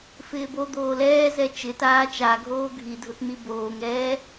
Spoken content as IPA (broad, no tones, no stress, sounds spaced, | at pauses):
f ɪː b o d̪ oː l ɛː z ɛ t͡ʃ ɪ t aː t͡ʃ a ɡʱ oː ɡʱ i dʱ ʊ t n̪ i b oː ŋ ɛː